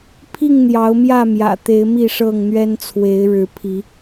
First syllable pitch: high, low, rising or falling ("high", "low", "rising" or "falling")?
falling